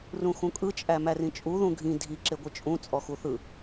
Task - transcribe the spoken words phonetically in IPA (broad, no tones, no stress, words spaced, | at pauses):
rũxũkʼɯ t͡ʃʼæmærĩt͡ʃʼu ðũɡʱĩ dʱi ǁeɡʷɯt͡ʃʼũ t͡sʼɔxuθɯ